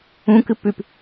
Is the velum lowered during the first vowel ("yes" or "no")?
yes